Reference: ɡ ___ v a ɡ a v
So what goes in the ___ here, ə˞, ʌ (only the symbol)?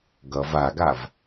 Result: ʌ